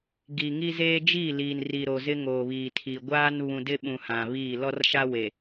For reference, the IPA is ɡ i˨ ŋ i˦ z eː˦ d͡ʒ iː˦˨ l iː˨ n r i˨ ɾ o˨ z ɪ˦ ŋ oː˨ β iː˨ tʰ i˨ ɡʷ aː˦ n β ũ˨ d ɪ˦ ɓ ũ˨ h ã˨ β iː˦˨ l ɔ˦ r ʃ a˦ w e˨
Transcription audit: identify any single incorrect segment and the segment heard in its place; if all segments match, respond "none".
none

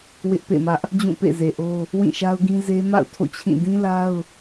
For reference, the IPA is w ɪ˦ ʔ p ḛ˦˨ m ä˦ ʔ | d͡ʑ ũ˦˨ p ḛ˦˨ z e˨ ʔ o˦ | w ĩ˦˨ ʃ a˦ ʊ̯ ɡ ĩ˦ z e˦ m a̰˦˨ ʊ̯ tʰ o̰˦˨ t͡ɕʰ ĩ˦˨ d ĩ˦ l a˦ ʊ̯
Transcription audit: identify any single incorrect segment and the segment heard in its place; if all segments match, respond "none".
none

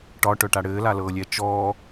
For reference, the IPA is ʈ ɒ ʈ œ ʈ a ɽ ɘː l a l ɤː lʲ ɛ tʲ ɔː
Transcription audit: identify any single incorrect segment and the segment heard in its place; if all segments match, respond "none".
tʲ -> t͡ʃ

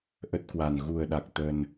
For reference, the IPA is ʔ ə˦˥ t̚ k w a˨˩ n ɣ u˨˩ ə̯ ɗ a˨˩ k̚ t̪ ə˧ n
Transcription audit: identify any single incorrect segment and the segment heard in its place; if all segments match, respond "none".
none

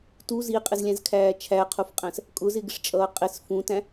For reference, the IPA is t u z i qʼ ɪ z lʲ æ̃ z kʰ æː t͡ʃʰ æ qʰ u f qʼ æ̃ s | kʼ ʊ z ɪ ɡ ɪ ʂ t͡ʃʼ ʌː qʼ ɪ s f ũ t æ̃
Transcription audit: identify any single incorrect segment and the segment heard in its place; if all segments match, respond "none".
none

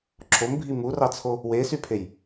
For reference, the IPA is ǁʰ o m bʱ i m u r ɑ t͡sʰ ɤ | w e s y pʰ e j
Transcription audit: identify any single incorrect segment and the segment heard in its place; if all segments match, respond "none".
ɤ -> o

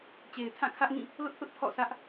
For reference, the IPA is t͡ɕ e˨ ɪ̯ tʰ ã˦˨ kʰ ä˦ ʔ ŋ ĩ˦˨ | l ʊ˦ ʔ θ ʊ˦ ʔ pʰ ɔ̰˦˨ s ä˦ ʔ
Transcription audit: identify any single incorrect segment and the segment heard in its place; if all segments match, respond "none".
none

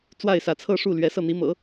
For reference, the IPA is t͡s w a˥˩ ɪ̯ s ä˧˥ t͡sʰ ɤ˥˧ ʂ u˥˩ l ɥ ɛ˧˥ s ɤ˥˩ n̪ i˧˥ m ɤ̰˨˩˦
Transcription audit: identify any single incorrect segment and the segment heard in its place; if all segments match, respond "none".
none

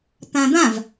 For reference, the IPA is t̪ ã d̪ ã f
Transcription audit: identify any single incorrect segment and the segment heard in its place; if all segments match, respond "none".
f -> v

